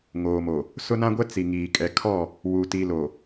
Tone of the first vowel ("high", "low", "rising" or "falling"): low